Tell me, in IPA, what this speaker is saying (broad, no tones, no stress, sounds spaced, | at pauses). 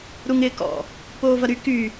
ɾ u ŋ ɪː k ɔ̰ | p oː v ɐ ɾ y k y